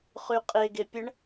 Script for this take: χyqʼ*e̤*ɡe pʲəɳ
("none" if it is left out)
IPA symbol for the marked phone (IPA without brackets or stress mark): e